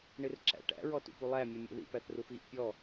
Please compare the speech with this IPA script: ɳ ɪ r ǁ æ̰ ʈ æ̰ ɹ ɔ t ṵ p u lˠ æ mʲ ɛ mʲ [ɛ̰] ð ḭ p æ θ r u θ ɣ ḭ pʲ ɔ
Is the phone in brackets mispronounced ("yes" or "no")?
no